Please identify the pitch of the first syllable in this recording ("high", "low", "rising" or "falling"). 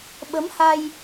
rising